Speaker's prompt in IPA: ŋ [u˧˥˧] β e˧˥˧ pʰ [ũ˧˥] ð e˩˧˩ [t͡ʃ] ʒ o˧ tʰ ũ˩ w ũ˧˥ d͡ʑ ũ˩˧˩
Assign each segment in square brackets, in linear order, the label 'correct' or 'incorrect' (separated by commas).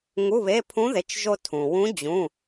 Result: correct, correct, correct